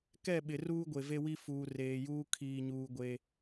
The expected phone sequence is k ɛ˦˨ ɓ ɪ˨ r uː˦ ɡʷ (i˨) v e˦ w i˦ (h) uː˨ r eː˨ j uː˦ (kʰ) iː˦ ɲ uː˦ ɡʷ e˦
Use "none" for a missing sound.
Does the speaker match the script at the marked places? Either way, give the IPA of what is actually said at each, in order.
e˨, f, kʰ

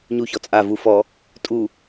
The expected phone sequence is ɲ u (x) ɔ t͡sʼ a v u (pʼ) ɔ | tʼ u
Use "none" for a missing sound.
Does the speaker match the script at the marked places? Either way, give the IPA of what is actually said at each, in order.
ç, f

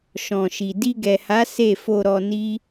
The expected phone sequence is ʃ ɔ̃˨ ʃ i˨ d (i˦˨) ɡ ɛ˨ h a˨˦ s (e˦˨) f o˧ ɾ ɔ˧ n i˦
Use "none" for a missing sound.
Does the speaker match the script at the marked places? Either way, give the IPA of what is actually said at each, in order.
i˧, e˦˨

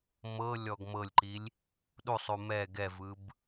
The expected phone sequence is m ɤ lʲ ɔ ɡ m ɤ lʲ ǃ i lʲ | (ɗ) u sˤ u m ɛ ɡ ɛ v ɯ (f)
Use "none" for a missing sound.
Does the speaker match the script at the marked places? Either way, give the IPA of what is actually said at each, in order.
ɗ, b

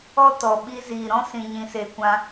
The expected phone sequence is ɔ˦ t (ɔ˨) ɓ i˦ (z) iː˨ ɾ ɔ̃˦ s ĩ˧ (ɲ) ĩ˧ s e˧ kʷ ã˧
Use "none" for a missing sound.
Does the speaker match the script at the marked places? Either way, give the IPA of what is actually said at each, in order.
ɔ˨, z, ɲ

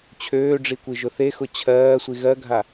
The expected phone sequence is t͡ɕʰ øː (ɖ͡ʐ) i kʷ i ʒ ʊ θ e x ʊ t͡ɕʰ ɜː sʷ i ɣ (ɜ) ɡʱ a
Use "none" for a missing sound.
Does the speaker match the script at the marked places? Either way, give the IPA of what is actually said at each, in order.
ɖ͡ʐ, ɜ

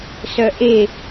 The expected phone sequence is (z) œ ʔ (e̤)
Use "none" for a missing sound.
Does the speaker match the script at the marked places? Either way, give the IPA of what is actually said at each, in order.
s, e

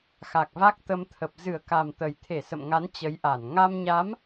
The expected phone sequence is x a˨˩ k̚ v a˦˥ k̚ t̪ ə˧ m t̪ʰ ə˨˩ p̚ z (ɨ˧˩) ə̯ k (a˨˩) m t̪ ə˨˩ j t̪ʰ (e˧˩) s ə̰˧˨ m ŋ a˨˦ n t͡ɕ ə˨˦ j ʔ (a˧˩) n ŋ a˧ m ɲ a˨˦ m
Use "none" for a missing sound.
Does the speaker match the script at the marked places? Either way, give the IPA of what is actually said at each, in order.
ɨ˧˩, a˨˩, e˧˩, a˧˩

